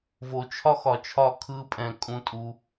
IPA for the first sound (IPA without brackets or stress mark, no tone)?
v